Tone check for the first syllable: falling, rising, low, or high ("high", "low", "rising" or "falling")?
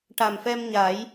low